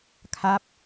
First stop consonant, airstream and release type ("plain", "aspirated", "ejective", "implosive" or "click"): aspirated